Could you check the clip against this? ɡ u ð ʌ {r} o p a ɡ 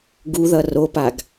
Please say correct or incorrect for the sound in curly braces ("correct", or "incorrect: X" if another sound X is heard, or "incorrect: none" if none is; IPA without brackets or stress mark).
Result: correct